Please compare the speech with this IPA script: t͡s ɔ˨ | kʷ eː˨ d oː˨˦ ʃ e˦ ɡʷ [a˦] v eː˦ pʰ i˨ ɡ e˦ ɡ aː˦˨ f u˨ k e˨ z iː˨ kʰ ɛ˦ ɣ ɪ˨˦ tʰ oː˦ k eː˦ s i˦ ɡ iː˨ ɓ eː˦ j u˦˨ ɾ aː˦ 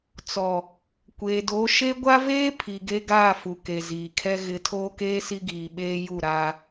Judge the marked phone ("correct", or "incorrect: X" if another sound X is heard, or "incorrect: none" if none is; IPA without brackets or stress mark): correct